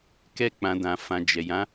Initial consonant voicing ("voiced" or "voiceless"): voiceless